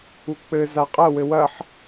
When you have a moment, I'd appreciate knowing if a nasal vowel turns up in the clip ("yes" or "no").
no